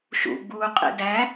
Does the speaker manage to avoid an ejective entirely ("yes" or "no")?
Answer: no